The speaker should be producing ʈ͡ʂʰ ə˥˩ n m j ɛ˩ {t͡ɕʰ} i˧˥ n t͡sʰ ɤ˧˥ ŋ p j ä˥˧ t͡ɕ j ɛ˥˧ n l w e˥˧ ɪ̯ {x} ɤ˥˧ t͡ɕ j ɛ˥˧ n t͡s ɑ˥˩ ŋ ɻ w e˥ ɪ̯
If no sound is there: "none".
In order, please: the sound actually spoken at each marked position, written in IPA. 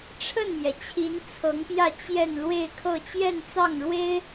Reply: t͡ɕʰ, kʰ

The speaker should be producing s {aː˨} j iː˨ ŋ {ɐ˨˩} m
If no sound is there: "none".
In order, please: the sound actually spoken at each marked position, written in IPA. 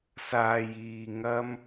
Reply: aː˨, ɐ˧

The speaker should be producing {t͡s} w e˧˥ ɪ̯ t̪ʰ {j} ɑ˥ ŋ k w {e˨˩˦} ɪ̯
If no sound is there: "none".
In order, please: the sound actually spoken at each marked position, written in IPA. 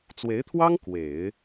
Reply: t͡s, w, e˨˩˦

